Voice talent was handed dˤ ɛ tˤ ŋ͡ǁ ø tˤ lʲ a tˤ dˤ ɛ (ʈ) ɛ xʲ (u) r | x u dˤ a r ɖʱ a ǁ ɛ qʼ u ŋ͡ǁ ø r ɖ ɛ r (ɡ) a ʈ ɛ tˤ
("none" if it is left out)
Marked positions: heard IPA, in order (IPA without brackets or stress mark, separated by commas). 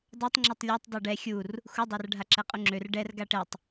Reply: ɖ, u, ɡ